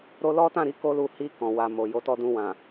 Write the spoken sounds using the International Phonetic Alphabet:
ɾ o˧ l ɔ˦ t ã˦˨ ɾ i˨˦ k o˦ l u˧ h i˧ k ɔ̃˨ w a˨ m o˨ j o˨˦ t ɔ˧ d ũ˧ w ã˨

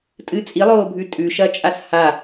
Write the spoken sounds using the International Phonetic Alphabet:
tʼ ɨ t͡sʼ i lˠ oː bʱ ʉ tʼ ʉ ʃ ɐ t͡ʃʼ a s h a

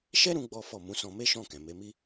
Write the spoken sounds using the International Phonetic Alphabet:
ʃ ɛ˦ ɾ ũ˦ ɡ͡b ɔ˦ f ɔ˦˨ m ũ˨˦ s ɔ̃˧ m e˦ ʃ ɔ̃˦˨ k ɛ̃˨ m e˨˦ m i˦

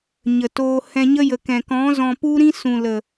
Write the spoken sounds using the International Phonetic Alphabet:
ɲ ə˨ t oː˧ h ɛ̃˧ ɲ ə˦ j ə˨ k ɛ̃˨ k ɔ̃˨˦ z ɔ̃˧ p u˦ ɾ ĩ˦ s ũ˨ l ə˨

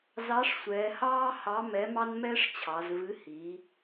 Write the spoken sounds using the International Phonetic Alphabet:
z ɑ˨˥ ʂ sʷ ɛː˩˧ h ɑː˦ h ɑ˨˥ m ɛ˨˥ m ɑ˦ n m ɛː˦ ʂ t͡ɕʰ ɑ˩˧ z v ɨ˨˥ h i˩˧

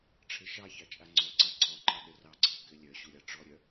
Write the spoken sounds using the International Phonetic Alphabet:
ʈ͡ʂʰ ɘ ʃ ɑ ç ɑ t͡ʃʼ a ŋ͡ǀ ɔ ǀ a ǀʰ ɔ ǃ ɑ ɗ ə r ɑ ǀʰ ɘ k ɘ lʲ œ ɕ u ɾʲ ɑ ʈ͡ʂ ɔ ɾʲ œ

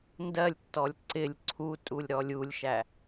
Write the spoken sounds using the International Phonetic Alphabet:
n d ɜ lʲ tː ɔ lʲ ǀ ɪ lʲ ǀʰ u tʼ u lʲ ɾ ɔ lʲ u lʲ ʃ æ

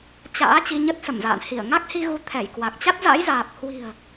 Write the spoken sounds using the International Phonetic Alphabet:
t͡ɕ a̰ː˧˥ t͡ɕ i˧ ɲ ə˦˥ t̚ s ə˧˩ m z a̰ː˧˨ n h i˧˩ ə̯ ŋ a˦˥ k̚ h i˧ ɣ u˨˦ t̪ʰ ɛ˧˩ j k w a˨˩ k̚ t͡ɕ a˦˥ t̚ z a̰˧˥ j z aː˨˩ p̚ h w i̤˨˩ ə̯

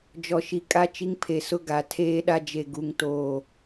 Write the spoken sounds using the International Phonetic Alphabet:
d͡ʒ ɔ˨ ʃ i˨ kʼ a˦ t͡ʃ i˦ ŋ pʰ e˨ s ʊ˦ ɡ a˨˦ tʰ eː˦ ɗ a˦ d͡ʒ e˨ ɡ u˨ ŋ t oː˦˨

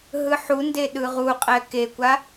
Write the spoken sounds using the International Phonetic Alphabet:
ɦ ɯ ħ u n d e ɗ ɯ ʁ u qʼ ɛ k e kʷ a

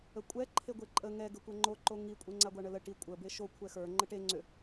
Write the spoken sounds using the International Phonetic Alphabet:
ə kʷʼ ɛ ǃʰ e ɡʷ e ǃʼ ə ŋ ɛ ɡ ə kʷ ɛ ŋ͡ǃ o ǃ o ŋ i kʷʼ e ŋ͡ǀ a ɡʷ a ɳ ə l ə ʈ i kʷʼ ə b e ʃ o kʷʰ ɛ x ə˞ ŋ͡ǃ ə ʈ e ŋ͡ǀ ʏ

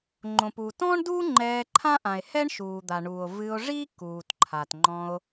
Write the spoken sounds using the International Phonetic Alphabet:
ŋ͡ǃ õ˩ p uː˩ t ɔ̃ː˥ ɳ d uː˥ ŋ͡ǃ ɛː˧ ǃʰ ã˥ ʔ ã˩ e̯ h ɛ˥ ɳ ʃ uː˩ d̪ a˩ ɳ uː˩ o̯ v ɨ˧ o̯ ʐ i˥ k uː˩ t ǃʰ a˩ t ŋ͡ǃ ɔ̃˧ o̯

